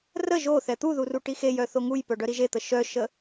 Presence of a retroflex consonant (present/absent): present